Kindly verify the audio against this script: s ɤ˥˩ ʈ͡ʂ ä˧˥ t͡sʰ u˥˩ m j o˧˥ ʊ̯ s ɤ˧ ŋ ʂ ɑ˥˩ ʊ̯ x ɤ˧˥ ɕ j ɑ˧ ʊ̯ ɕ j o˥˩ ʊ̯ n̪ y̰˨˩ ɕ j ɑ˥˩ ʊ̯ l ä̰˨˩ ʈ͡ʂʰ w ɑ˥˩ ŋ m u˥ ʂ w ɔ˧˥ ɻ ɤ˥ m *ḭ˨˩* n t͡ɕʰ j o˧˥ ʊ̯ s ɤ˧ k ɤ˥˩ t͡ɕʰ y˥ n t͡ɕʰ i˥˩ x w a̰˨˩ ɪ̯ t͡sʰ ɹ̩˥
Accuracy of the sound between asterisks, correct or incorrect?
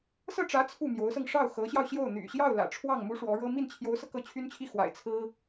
incorrect